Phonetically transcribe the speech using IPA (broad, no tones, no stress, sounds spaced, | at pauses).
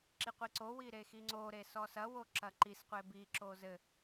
ǁ i qʷ i ǀ o w i ɾ e x i ŋ͡ǀ o ɾ e s ɔ s ɐ w o ǁ ɐ ǃ i s qʷ e b i ǁ o z ɘ